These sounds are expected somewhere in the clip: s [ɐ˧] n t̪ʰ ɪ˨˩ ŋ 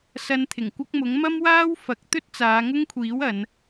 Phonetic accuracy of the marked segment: correct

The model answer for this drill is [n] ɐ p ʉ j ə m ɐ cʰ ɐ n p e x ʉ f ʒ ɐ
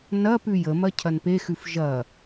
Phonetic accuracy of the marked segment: correct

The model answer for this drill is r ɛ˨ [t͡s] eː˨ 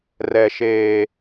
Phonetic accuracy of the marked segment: incorrect: ʃ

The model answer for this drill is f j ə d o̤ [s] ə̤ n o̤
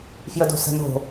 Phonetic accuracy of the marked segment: correct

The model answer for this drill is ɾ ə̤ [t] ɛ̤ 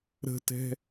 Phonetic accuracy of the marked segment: correct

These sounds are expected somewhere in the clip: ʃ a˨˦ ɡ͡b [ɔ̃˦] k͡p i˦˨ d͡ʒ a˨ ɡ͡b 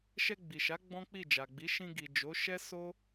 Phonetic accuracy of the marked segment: correct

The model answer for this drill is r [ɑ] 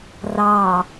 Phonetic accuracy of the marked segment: correct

